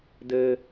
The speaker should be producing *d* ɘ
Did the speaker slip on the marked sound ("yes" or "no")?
no